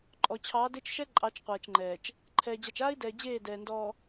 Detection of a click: present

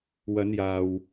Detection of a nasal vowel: absent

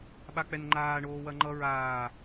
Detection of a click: present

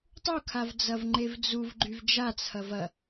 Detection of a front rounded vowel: present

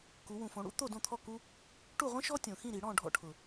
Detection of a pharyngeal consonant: absent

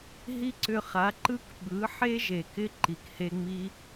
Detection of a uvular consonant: present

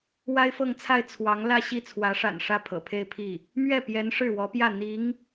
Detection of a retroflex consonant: present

